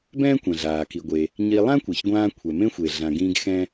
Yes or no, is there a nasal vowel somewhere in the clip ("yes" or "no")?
yes